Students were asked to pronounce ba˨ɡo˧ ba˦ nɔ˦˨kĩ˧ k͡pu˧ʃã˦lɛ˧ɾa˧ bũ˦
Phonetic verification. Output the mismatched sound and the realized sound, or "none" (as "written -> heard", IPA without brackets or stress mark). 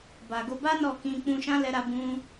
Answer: u˧ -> ũ˧